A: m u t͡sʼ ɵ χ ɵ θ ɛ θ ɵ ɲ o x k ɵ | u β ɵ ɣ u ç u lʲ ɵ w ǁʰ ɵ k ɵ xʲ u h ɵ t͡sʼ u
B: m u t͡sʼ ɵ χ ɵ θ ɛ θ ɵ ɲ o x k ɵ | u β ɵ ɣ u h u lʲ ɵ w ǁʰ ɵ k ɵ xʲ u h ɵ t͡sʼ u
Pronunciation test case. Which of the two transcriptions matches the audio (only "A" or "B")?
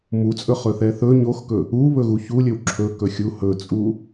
A